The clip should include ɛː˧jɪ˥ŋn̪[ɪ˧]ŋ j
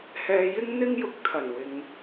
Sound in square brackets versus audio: incorrect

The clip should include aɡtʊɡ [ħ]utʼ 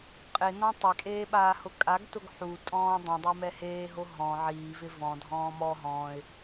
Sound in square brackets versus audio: correct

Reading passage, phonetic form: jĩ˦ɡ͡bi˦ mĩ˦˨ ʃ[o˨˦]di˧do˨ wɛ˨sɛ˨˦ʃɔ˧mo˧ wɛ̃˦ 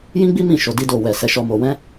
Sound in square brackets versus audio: incorrect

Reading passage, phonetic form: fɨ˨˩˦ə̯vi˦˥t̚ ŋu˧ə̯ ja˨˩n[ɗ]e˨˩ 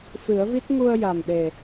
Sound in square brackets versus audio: correct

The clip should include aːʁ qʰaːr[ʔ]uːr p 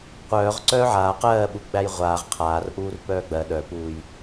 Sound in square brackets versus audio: correct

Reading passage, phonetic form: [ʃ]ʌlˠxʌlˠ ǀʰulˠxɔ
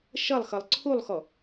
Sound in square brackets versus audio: correct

